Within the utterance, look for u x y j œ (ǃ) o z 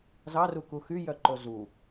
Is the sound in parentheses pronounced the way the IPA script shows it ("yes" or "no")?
yes